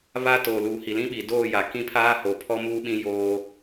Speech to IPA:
βa˦toː˨ luː˨hi˨lĩ˦ ɓi˨doː˦˨ja˨ kĩ˦pʰaː˦ ho˨pʰɔ˦ muː˦ɓĩ˦joː˦

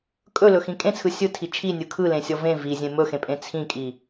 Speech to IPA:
kʼɵlɵxĩ kʼẽt͡sʰɯ sʲɯtʰi t͡ʃʰinʲɯ kʰɯlẽsʲɔ vẽ vizʲẽ mɵxẽpʼẽ t͡sʰĩkʼi

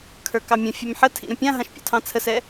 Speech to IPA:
kʰə˞kɑmʲə̃fʲɛm ħətʰḭ ɾə̃pʲãɦãʃ pʲɔ̰tʰɑ̃t͡sʰəsɛ

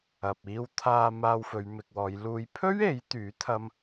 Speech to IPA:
ɐ˨p̚iː˧w t̪ʰaː˧ maː˧wfɵ˨˧ɥmɪ˨k̚wɔː˨˧j luː˨˧jpʰɵ˥ɥ e˨˥jt̪yː˨˥ t̪ʰɐ˥m

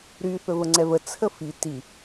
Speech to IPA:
ɾy θɵvəŋ͡ǀɛvə t͡sʰəfi ti

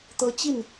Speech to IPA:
t̪ɤ˦t͡ɕi˥˨n

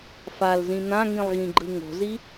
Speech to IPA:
falzĩ n̪ãŋĩlˠ ɣĩɡ͡ǃɯŋo̤zi

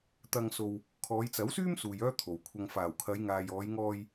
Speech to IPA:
t̪ɐ˧ŋso˧w | kʰɔː˨˧jt͡sɐ˨˥wsyː˥m suː˧jœː˥t̪ʰo˨wkʷʰɐ˧ŋ faː˨˩wkʰɐ˨˧jŋaː˨j ɔː˨˧jŋɔː˧j

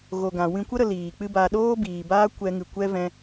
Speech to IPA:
ɣo˨ɡã˨ wĩ˧kʷə˦ ɾə˧ liː˨k͡pɨ˦ba˧ ɗoː˦biː˨baː˦ kʷɛ˧ŋɨ˨kʷɛ˦ vɛ̃˧

